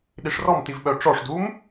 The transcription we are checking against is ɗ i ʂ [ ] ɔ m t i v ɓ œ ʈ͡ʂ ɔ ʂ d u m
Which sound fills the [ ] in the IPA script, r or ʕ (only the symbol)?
r